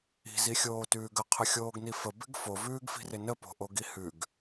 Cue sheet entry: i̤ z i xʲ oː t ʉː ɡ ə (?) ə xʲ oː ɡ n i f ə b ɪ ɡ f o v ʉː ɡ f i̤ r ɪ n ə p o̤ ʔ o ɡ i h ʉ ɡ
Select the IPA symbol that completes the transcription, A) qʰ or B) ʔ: A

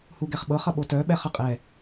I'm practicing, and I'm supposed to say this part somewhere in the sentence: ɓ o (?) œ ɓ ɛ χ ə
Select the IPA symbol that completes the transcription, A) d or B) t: B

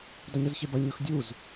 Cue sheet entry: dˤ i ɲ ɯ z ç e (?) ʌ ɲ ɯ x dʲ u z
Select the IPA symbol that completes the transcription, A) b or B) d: A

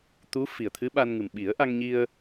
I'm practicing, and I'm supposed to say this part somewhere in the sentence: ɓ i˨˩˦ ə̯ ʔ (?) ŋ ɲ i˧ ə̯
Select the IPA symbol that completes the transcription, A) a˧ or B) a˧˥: A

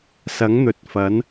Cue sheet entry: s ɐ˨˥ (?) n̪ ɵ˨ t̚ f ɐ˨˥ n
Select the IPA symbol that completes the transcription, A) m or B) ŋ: B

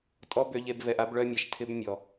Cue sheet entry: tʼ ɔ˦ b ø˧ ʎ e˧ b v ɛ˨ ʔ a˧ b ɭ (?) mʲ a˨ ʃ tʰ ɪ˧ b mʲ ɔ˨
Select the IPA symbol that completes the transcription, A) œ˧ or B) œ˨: A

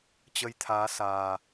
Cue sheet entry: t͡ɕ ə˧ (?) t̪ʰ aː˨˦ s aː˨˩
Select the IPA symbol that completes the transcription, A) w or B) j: B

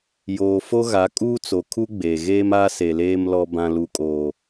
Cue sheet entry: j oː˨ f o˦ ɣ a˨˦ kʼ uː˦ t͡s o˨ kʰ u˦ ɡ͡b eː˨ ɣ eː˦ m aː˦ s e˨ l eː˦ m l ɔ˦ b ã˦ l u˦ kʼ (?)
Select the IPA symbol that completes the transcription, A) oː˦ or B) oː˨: A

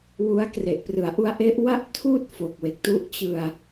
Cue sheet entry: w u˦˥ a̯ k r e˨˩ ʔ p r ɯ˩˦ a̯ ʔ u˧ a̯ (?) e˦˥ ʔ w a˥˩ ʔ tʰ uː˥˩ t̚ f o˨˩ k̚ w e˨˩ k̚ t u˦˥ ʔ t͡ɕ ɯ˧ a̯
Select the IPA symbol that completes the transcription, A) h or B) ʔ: B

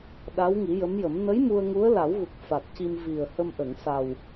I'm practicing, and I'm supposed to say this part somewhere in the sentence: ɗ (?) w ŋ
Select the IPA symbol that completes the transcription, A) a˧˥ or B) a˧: A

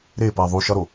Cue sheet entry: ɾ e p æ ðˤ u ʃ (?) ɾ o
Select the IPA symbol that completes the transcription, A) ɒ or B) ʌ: A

